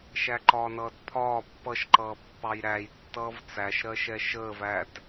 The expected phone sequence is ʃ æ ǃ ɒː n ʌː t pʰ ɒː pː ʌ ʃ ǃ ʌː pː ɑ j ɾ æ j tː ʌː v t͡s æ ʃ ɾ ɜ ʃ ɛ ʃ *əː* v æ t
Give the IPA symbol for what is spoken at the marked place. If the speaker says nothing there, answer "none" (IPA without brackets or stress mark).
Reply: əː